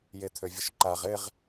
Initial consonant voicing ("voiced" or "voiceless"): voiced